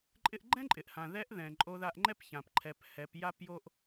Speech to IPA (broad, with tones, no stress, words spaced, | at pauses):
ǃʼɪ˧ʔɡ͡ǃɛ̃˥ǃʼɪ˩ʔhã˩ ðɛ˧˥ʔðɛ̃˩ ǃʼo˧ða˧ʔŋ͡ǃɛ˥pçã˩p ǃʰɛ˩˧p hɛ˩˧p ja˥pjo˥ʔ